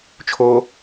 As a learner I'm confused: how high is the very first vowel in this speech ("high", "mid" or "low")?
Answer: mid